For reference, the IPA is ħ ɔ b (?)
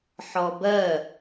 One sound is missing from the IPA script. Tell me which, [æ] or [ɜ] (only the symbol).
ɜ